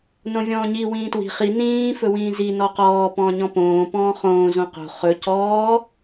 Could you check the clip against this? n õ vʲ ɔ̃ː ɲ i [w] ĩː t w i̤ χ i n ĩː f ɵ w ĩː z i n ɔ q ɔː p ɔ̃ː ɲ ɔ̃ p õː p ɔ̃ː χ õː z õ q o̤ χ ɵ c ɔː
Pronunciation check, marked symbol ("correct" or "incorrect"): correct